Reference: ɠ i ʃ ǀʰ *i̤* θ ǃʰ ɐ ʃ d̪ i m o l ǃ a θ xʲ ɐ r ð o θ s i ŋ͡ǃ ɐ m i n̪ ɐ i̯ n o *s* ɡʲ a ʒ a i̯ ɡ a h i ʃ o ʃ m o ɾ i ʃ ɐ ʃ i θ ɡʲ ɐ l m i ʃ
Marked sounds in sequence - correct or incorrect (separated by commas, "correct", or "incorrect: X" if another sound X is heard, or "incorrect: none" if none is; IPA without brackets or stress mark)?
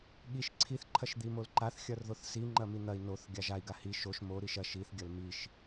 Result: incorrect: i, incorrect: θ